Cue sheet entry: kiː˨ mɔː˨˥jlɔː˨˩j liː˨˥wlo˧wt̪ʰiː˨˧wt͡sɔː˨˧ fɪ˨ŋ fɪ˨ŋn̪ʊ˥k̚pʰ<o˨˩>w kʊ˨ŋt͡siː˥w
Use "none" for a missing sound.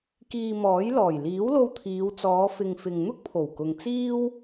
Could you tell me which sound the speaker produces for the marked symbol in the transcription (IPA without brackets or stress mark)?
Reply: o˨˩